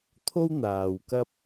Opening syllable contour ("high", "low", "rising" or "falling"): high